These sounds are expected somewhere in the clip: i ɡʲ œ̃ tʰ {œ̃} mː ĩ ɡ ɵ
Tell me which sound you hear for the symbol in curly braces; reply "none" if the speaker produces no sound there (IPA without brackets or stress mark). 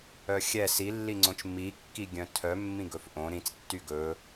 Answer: œ